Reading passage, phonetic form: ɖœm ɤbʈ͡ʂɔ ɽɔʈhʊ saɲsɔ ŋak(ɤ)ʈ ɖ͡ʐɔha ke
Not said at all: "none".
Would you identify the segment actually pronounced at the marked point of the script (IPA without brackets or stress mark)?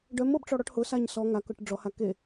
ɤ